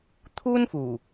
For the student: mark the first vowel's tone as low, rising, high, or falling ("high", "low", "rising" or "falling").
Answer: high